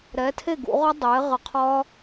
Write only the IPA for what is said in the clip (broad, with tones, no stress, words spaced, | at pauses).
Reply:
ɾɛ˩˥tʰe˥˩ɡṵ˧˩˧ʁɒ˦˥ dˤeː˩˥ ʁə˧˩˧qʰɒ˦˥